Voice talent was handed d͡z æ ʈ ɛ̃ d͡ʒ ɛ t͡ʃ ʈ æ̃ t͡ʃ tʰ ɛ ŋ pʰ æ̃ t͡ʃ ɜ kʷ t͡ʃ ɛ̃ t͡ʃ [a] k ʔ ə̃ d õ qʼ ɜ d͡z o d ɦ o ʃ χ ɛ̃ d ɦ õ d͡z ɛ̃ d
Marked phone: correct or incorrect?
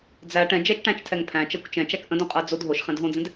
incorrect